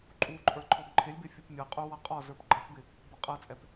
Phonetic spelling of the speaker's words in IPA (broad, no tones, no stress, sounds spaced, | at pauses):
ǃʼ u ǃʼ ə˞ ǃʰ ɔ ɡ ǃʰ ɪ lʲ b ɪ fʲ u p mʲ ɤ qʼ u w ʌ qʼ ɔ z ə˞ p ɡ͡ǃ ʌ p b ɪ | b ɤ qʼ ɤ t͡sʼ ɛ p